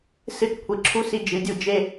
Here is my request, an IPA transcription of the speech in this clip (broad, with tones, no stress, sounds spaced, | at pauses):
s ɨ˧˥ t kʷʰ i˩ ǁʰ u˧˥ s i˧ d͡ʒ ɨ˩˧ dʲ u˧ d͡ʒ e˧